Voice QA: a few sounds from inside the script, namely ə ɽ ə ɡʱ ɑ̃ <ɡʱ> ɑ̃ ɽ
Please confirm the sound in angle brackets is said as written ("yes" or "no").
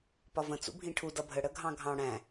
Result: yes